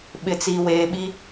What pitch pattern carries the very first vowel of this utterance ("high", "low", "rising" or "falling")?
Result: low